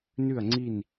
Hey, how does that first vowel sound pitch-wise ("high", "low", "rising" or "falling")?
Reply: falling